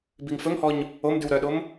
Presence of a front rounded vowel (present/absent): present